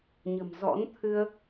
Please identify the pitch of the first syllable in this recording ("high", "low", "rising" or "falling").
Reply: low